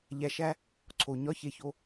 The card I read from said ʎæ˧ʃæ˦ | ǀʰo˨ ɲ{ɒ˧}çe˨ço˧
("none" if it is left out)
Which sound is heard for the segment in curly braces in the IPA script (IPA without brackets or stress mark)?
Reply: ɒ˧